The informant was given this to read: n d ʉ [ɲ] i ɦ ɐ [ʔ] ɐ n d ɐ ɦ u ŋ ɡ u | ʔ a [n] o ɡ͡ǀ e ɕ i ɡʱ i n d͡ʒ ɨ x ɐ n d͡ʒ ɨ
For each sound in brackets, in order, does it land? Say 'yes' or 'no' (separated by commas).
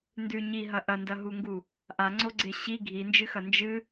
yes, yes, no